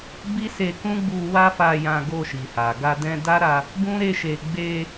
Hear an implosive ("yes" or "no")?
no